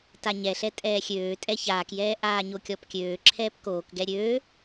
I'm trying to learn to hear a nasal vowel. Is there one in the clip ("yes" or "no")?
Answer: no